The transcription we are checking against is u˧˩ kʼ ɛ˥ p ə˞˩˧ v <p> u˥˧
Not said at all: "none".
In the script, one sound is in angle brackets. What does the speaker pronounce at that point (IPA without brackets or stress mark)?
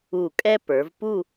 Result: p